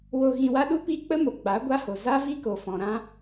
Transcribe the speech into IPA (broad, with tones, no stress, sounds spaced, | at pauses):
w o˧ ɣ ĩ˧ w a˦ ɗ u˦ p i˦ k͡p ə˦ m o˨ ɡ͡b a˨˦ ɡʷ a˦ h o˨ z a˦ v i˦ k o˨ f ɔ̃˨ ɾ ã˦